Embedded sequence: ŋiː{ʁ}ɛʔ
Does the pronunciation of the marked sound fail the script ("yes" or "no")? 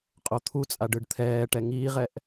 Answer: no